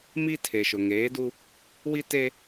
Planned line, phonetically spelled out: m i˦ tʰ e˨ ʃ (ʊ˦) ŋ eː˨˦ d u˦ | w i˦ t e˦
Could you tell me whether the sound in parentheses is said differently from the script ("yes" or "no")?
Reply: yes